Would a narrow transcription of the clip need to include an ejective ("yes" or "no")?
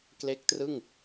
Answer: no